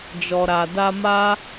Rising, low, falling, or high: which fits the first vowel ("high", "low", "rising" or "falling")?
low